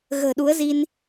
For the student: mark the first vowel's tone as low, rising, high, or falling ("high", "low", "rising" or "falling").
low